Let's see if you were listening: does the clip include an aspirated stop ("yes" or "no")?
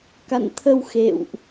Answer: yes